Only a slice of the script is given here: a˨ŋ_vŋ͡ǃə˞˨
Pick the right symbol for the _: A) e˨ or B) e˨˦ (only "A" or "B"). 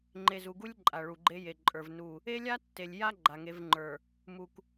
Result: B